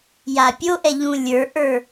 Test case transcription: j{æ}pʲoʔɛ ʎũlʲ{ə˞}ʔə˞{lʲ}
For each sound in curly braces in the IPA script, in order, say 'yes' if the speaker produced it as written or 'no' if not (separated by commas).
no, yes, no